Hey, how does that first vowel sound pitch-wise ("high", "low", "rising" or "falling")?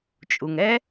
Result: low